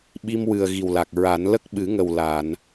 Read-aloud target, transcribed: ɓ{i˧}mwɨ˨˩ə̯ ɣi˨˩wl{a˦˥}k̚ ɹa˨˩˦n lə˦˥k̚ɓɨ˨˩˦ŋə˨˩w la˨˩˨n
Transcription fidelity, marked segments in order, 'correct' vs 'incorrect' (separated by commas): correct, incorrect